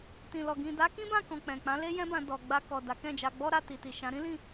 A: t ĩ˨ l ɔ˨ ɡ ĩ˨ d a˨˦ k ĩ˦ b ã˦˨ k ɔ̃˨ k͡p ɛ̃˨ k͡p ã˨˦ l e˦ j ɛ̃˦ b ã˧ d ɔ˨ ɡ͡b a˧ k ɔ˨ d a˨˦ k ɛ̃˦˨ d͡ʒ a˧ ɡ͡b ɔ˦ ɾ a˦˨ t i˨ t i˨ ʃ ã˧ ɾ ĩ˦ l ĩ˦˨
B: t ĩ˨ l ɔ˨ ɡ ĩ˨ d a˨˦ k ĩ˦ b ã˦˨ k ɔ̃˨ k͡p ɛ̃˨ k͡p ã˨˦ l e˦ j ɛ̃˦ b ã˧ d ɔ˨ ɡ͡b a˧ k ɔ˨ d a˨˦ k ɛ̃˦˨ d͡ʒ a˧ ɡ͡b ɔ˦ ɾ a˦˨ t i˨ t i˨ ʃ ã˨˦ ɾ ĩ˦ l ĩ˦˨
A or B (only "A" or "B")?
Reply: B